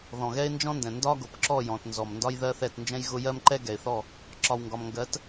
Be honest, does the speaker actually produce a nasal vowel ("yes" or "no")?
yes